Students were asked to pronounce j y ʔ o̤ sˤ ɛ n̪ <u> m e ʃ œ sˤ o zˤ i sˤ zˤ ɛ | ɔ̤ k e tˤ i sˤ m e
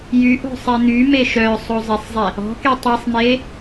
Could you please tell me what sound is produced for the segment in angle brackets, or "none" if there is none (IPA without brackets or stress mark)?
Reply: y